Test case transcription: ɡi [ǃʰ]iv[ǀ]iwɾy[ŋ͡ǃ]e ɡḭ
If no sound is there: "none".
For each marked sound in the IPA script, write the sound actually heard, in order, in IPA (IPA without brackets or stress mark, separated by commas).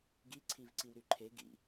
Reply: ǀʰ, ǀ, ǃʰ